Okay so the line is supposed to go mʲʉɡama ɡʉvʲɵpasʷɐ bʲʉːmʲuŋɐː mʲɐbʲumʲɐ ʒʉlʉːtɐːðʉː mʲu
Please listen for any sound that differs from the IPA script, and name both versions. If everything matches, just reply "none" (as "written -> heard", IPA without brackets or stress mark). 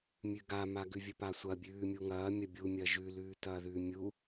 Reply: none